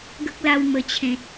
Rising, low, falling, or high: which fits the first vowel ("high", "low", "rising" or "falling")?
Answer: high